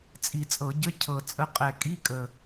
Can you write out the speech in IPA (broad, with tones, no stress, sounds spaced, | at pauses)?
t͡sʼ i˧˩˧ t͡sʼ ɤ˧˩˧ ɟ ə˧˥˧ cʰ ɤ˨˩ t͡sʼ ə˧˥ qʼ ɛ˨˩ kʼ i˧˥˧ kʼ ə˨˩